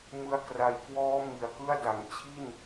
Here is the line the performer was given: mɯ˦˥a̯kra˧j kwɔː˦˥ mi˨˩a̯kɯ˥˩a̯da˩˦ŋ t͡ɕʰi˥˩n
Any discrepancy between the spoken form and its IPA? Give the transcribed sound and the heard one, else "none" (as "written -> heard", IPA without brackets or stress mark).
none